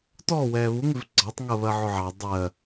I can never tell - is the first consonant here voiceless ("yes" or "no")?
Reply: yes